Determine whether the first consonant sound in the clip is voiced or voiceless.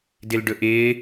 voiced